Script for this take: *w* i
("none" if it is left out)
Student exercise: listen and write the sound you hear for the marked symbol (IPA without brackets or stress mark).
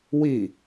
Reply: w